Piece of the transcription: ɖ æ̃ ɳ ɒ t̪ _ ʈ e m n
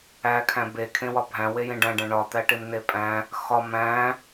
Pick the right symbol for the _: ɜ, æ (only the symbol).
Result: æ